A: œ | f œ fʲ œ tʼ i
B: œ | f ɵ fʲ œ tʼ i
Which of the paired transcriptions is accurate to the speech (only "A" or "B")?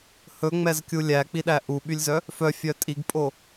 A